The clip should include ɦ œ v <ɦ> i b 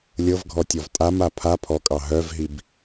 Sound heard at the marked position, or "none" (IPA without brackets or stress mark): ɦ